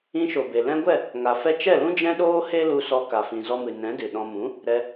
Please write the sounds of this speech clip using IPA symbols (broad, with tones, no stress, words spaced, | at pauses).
ĩ˧ʃo˨ be˨ lɛ̃˧ɡʷɛ˦˨ | ŋa˨ fɛ˧ t͡ʃɛ˦˨lũ˦ d͡ʒɛ̃˧ɗoː˧ he˦lu˧sɔ˧ka˨ fĩ˨zɔ˧mɨ˨ nɛ̃˨˦dɨ˨ɗɔ̃˧ mũ˨˦ | ɾɛ˧